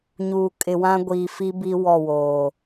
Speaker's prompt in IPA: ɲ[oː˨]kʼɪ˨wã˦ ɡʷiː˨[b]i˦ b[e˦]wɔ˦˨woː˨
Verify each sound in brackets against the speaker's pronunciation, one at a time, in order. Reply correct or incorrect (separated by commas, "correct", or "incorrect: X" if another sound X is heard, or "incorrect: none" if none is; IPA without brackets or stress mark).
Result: incorrect: uː˨, incorrect: f, incorrect: i˦